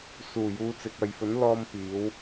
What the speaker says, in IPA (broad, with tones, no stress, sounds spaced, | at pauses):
s uː˨˩ j uː˨˧ t͡s ɪ˨ k̚ ɐ˨ j f ɵ˨˥ n l ɔː˧ m p iː˨˥ w